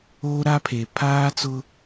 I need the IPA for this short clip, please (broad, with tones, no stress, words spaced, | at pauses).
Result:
oː˦ɾa˦pʰe˨ pʰaː˦t͡sʊ˦